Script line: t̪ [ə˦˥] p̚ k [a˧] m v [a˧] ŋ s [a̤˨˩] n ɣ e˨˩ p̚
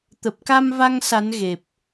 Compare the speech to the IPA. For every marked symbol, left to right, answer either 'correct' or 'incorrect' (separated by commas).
incorrect, correct, correct, incorrect